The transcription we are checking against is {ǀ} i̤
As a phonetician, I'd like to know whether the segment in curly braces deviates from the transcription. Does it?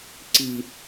no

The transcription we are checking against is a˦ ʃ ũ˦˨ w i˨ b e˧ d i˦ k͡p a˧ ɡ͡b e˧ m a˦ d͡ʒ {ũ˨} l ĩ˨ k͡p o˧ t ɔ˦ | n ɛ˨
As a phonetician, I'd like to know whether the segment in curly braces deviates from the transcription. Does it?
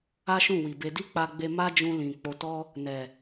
yes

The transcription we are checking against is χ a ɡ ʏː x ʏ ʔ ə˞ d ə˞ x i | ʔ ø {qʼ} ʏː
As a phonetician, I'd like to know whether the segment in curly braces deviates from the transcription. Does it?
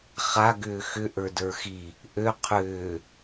yes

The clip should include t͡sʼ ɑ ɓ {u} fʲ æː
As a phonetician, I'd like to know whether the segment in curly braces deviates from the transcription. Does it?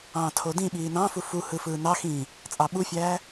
no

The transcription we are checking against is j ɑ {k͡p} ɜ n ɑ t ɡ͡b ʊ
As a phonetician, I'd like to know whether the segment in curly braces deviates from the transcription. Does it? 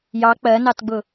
no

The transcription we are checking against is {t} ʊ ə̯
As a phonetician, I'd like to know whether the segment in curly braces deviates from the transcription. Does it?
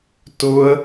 no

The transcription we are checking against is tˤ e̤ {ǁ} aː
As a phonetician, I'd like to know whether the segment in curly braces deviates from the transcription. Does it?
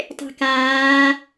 yes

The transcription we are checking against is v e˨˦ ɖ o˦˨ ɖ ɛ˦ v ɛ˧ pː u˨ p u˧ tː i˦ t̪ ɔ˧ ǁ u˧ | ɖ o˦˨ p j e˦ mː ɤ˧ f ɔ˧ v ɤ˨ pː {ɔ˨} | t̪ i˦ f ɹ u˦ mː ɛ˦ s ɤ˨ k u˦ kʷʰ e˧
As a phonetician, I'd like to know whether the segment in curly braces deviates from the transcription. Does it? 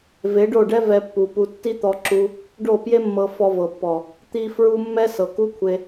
no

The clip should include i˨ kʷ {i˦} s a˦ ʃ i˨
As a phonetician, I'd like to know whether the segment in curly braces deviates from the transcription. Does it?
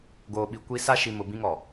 no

